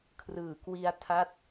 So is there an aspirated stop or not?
yes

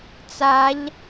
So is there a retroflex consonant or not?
no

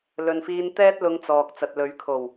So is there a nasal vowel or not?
no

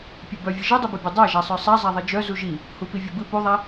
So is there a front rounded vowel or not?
yes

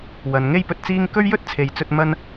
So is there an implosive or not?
no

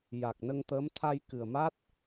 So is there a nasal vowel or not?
no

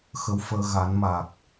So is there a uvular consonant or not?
no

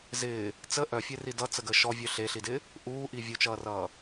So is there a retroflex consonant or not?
no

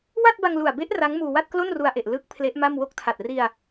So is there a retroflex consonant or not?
no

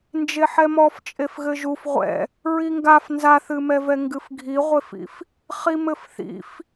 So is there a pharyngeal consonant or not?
yes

